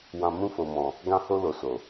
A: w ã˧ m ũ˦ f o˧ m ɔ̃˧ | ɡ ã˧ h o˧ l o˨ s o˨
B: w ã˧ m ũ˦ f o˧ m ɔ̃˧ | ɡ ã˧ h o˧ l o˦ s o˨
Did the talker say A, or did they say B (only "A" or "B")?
A